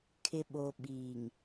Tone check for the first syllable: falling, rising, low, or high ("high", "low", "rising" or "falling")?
low